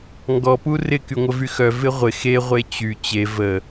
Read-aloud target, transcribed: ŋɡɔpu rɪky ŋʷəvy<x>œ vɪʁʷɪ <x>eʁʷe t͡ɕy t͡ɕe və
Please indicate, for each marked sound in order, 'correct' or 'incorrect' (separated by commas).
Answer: correct, correct